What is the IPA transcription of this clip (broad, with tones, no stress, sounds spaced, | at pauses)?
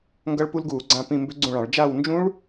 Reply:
ŋ ɡ ʌ˦˥ ɭ p u˦˥ l ɡ uː˧˩˧ ɡ͡ǀ ã˦˨ p ĩ˦˨ m b ʏ˦˥ ɡ͡ǀ ũ˦˨ ɭ ɑ̃˧˩˧ ɭ d͡ʒ a˦˨ w n d͡ʒ ũ˦˥ ɭ